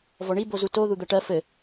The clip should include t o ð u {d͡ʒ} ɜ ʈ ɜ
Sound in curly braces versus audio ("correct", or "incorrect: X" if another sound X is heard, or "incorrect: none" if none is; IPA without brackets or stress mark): incorrect: d̪